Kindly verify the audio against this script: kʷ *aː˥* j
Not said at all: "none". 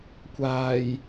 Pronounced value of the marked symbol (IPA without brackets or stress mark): aː˨˩